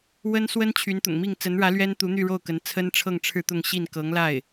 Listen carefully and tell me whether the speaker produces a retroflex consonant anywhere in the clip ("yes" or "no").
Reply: yes